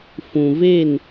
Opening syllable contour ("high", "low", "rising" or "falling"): low